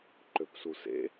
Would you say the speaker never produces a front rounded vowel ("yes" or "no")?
no